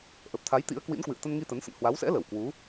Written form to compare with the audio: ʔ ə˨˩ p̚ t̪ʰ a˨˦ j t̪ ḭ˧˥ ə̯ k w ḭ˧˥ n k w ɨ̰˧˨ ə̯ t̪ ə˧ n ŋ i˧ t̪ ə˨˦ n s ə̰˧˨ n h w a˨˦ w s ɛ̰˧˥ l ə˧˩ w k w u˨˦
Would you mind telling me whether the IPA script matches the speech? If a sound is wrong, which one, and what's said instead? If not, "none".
none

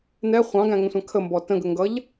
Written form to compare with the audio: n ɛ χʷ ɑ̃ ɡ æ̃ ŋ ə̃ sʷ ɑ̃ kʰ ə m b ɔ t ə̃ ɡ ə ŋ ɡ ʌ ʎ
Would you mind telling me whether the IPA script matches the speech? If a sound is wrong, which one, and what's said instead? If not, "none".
none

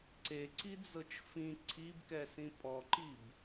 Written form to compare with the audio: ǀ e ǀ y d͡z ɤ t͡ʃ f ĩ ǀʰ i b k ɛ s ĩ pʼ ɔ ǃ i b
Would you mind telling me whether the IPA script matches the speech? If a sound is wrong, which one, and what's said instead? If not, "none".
y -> i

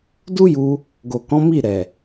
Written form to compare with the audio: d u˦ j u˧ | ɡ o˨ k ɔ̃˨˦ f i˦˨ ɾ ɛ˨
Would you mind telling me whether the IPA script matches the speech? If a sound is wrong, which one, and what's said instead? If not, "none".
f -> m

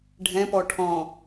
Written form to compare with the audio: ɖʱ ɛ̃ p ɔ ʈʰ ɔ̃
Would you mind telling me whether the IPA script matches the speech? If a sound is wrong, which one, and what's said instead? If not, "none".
none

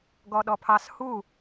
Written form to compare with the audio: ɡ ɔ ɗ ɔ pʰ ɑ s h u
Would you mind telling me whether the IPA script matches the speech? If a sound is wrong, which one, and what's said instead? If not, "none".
none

